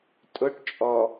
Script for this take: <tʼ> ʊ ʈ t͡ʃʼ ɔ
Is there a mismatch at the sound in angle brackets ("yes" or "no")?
no